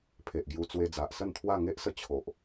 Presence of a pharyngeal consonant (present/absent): absent